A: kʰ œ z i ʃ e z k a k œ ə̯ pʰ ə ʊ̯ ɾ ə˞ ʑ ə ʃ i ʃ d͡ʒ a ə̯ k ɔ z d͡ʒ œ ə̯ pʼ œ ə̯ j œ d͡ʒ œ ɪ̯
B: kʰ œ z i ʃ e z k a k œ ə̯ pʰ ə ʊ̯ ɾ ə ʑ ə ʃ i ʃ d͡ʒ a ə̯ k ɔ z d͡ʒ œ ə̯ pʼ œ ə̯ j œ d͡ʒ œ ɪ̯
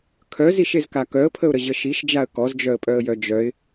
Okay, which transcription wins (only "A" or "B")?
B